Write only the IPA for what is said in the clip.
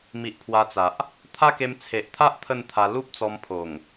mi˨ʔ pʰwa˧t͡sa˨ʔ | t̪ʰa˦ke˧mt͡sʰe˨ʔt̪ʰa˦ʔ t̪ʰə˥˧nt̪ʰa˧ lu˦p̚t͡sɔ˧mpʰo˨˩ŋ

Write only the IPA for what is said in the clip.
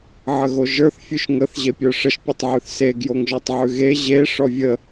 ʕəɣoʒə˞θ fʲʉʃŋəθ ʑepʲə˞ʂəʃ pʲetˤʕʉθse ɡjoŋʒɔtˤʕʉɣe ʑe ʂɔvʲə

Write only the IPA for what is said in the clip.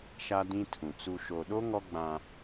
ʃa˦dĩ˦tʰũ˨ t͡su˨ʃo˨ɗo˦ ŋɔ˦ ɡ͡bã˦

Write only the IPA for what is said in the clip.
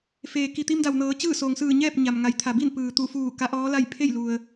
feː˩ ki˩t̪i˧mda˩wnɤː˩˧ t͡ɕɯː˥˨so˩ŋ sɯː˧˩ɲɛː˥˨p̚ ɲa˩m ŋa˩˧jt̪ʰa˩bi˥˨n pɯː˩t̪u˧˩fuː˧˩ ka˧˥ʔɔː˧˥la˥˨j pʰe˥˨jlu˩ə̯

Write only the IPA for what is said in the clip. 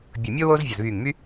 bʲʊ˧˩mʲo˥ woː˥zvʲɐ˧˩zβyː˧˩ŋmy˥

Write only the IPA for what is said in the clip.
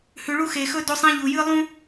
hʉ˨ɭu˦xe˨xɵ˦ do˦sˤĩ˦ʎu˨jɨ˦ lˠũ˦

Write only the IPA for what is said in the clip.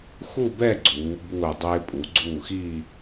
xu˥˧bɛ˥˧ ɡ͡ǀuː˩˧ buː˧˩ dˤɪː˧ pʼu˩˧ɡ͡ǀuː˧˩ xiː˥˧

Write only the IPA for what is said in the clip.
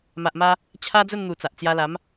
ma˨ʔma˧ | t͡ɕʰa˦d͡zə˥˧nn̪u˨˩ t͡sa˨ʔt͡sja˧la˨˦m

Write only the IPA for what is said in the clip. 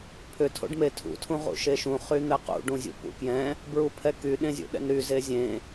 pʰʏ tʰo̰ɖmetʰṵ tʰũʁṵʃeʃũ χyn̪ɛqṵ ɖũzʲṵpṵkjɛ̃ | bɹupʰɛky ɗẽzʲṵɗɛ̰nɾy zezʲẽ

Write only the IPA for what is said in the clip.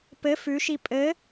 pɘ fʉʃi pʼɘ

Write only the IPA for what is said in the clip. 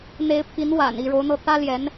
n̪e˧˥ɪ̯pʰi˧˥nwa̰˨˩n i˥˩ɻo˧˥ʊ̯n̪ɤ˥˩ t̪ä˥ljɛ˧˥n

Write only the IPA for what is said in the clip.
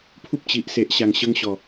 pʰu˦p̚t͡ɕi˨ʔse˨ʔ ɕa˨˩ŋɕə˧ŋɕɔ˨˩

